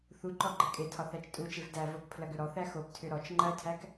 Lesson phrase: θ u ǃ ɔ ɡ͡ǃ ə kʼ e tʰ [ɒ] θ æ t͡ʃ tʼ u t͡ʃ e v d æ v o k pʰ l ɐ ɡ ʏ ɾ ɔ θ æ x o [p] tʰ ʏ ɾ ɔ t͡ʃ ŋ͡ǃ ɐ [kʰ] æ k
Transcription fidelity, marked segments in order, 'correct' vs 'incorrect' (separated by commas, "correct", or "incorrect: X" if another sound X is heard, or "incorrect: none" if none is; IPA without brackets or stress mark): correct, correct, incorrect: tʰ